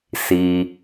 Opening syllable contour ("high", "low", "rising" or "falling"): low